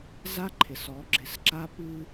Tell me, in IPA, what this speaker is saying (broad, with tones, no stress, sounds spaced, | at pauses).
z a˦ ǃʰ ɪ˨ s ɔ˨˦ ɡ͡ǁ ɪ˨˦ s ǁ a˦ p ɨ˦